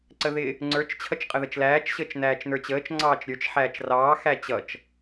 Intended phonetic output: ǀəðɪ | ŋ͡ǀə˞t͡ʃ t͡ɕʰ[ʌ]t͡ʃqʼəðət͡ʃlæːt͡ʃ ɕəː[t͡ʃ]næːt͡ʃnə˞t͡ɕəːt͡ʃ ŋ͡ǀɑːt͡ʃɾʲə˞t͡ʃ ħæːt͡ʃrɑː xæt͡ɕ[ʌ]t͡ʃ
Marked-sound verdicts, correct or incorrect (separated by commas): correct, correct, correct